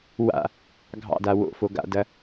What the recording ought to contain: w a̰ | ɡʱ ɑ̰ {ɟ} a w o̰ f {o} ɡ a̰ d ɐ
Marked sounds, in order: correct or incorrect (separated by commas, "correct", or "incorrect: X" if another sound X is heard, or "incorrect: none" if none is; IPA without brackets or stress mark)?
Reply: incorrect: d, correct